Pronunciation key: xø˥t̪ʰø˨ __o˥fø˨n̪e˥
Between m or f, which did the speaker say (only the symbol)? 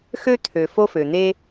f